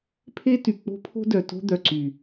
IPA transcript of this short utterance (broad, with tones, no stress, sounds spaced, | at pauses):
pʰ e˦ t y˨ k͡p o̤˦ pʰ o̤˦ d œ˨ t o̤˦ d̪ œ˨ ǀ y˨